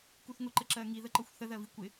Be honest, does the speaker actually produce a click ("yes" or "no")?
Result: yes